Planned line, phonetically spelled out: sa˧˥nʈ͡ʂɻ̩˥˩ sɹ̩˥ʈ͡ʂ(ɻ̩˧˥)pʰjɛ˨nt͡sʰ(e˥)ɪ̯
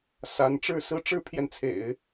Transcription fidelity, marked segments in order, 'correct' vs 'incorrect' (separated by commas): incorrect, incorrect